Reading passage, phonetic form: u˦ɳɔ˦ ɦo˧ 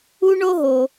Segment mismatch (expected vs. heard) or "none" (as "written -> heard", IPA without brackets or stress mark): ɔ˦ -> o˦